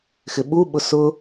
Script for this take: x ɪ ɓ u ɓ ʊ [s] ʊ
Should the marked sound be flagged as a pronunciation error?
no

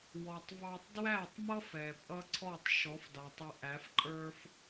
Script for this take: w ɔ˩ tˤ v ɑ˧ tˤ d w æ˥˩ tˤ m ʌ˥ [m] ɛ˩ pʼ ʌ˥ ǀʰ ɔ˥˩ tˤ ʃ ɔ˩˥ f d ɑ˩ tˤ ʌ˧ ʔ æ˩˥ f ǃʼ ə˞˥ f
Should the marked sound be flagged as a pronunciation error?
yes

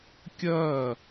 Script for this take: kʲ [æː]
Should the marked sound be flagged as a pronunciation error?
yes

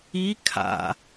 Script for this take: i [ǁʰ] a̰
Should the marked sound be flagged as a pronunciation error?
yes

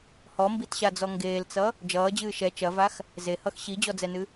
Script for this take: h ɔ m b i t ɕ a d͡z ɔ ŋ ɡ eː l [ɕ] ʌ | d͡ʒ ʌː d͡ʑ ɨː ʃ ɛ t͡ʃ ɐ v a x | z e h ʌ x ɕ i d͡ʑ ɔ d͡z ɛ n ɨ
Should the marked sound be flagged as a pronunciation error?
yes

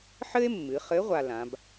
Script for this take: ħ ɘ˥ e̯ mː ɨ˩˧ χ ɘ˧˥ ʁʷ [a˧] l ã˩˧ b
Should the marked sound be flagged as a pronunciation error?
no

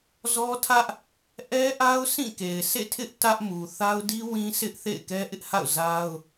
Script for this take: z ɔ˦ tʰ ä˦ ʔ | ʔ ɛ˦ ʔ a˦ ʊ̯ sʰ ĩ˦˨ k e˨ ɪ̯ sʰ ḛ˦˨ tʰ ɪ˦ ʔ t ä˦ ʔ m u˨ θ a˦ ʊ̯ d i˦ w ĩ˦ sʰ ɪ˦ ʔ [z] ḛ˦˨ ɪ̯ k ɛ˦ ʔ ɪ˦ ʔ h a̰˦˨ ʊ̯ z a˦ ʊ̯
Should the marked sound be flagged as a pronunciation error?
yes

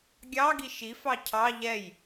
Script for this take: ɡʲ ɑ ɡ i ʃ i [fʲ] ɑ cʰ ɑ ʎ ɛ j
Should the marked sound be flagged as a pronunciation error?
yes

